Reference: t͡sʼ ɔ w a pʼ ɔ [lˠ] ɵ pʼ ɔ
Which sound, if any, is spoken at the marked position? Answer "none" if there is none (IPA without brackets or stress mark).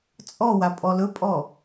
l